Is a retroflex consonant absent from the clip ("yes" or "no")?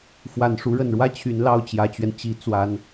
no